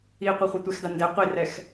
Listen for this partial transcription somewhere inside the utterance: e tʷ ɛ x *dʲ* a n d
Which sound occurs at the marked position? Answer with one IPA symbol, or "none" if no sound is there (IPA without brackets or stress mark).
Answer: d